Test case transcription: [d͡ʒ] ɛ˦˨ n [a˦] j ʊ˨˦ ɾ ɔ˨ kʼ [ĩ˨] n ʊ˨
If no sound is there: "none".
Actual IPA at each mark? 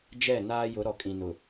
d͡ʒ, aː˦, ĩ˨

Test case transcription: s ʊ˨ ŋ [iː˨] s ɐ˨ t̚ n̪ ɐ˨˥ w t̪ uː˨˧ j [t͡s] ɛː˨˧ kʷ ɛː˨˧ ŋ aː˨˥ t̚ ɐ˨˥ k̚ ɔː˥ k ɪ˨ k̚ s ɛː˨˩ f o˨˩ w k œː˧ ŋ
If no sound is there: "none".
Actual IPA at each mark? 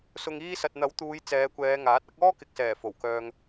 iː˧, t͡s

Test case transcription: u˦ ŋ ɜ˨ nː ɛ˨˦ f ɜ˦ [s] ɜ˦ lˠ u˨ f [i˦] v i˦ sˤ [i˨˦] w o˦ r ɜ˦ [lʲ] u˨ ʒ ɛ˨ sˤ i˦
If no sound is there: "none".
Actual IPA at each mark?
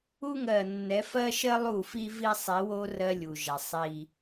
ʃ, i˦, i˨˦, lʲ

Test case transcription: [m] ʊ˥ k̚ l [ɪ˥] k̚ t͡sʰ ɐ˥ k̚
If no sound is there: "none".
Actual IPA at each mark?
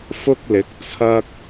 f, ɪ˨˥

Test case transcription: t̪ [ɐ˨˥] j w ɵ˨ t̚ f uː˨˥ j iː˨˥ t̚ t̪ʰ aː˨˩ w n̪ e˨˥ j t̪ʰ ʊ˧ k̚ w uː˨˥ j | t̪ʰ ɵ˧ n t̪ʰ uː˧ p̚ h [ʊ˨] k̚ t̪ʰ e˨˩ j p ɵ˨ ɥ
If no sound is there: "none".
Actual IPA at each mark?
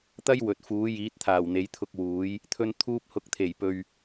ɐ˥, ʊ˨

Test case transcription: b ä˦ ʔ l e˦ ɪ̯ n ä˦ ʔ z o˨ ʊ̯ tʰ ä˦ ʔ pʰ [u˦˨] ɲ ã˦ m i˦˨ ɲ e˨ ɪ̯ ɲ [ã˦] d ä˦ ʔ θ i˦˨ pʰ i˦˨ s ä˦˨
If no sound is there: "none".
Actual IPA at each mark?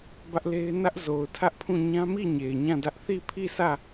ũ˦˨, ã˦˨

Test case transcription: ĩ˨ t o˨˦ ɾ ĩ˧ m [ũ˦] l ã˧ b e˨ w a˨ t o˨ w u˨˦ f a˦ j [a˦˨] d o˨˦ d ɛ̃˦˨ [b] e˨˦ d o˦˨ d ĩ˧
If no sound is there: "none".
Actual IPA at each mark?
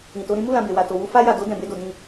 u˦, a˦˨, b

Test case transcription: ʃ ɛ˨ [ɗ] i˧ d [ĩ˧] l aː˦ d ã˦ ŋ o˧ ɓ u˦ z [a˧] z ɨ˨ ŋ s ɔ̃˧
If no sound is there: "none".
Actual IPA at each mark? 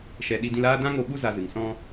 ɗ, ĩ˧, a˧

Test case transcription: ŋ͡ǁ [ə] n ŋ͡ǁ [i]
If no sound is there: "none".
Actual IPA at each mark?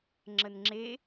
ə, e

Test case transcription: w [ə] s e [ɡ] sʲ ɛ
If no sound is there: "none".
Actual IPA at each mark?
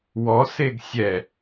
ɔ, ɡ

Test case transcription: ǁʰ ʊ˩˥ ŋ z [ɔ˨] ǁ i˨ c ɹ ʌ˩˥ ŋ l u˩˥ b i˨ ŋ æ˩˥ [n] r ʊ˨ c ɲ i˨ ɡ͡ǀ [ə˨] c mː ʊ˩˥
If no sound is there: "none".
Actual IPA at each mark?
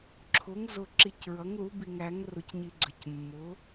ʊ˨, ŋ, ə˨

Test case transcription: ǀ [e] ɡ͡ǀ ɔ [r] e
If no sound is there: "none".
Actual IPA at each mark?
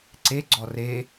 e, r

